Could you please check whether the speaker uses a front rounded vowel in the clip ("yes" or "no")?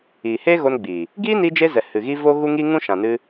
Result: no